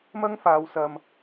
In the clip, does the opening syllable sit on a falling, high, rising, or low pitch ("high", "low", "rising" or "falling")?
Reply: high